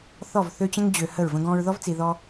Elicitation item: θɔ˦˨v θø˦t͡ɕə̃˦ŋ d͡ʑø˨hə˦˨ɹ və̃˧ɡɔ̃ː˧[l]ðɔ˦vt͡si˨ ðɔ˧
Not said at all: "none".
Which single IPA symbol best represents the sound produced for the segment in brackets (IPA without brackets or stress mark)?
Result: ɹ